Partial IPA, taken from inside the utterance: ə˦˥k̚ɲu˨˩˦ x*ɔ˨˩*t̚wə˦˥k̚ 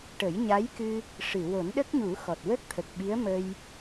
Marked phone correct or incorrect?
correct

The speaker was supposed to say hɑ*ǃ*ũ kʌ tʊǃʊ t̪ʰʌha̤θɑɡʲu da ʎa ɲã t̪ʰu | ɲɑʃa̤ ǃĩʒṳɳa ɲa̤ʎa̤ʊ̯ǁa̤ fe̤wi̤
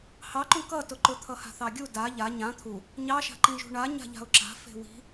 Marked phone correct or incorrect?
correct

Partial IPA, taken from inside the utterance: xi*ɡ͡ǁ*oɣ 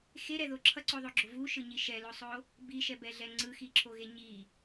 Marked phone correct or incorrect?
incorrect: ǁʰ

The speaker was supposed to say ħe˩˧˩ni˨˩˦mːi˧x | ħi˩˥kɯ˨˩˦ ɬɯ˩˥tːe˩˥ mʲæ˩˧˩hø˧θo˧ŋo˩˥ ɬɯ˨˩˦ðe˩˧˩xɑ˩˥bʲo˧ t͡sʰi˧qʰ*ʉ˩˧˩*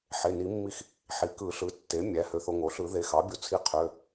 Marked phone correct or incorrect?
incorrect: ø˩˧˩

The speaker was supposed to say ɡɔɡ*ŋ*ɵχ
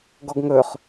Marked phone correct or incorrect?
correct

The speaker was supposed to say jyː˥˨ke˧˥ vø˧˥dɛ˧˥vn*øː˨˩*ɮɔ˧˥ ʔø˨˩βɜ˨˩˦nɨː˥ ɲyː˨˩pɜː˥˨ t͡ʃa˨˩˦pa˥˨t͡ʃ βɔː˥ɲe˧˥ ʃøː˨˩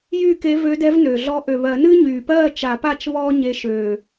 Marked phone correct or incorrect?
incorrect: ø˨˩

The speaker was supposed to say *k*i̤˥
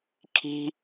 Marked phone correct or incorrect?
incorrect: kʰ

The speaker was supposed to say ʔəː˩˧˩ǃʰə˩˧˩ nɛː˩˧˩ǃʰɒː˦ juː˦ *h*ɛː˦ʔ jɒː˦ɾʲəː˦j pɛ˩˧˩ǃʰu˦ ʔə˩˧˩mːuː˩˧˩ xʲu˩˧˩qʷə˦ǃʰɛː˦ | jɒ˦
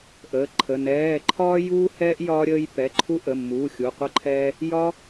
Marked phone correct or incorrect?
correct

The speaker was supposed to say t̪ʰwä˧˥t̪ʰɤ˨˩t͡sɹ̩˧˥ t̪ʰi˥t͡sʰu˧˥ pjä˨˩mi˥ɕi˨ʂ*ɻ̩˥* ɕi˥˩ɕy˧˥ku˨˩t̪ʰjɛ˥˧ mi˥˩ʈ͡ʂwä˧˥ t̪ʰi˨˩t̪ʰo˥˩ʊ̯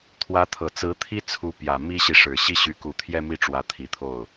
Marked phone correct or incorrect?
incorrect: ɻ̩˨˩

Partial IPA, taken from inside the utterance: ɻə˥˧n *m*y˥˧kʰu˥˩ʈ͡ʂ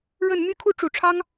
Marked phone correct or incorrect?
correct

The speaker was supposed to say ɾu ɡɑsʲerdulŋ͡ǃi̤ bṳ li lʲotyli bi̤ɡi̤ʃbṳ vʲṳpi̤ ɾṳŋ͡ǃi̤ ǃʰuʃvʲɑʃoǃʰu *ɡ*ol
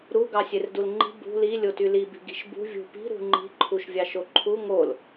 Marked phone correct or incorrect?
incorrect: ŋ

